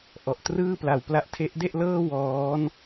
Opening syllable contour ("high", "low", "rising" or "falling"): low